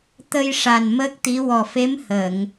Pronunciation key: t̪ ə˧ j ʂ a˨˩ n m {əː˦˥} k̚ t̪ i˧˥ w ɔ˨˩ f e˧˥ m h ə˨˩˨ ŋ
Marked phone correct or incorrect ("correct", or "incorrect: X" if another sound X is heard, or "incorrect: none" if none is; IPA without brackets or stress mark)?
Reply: correct